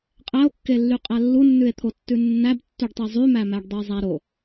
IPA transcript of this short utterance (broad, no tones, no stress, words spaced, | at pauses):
qʼæo̯kːelːyqʼæ lːunːʉe̯t̪ʰo tːʉnːæbtːyɖtˤe zˤymæmæɖdˤe zˤæɾo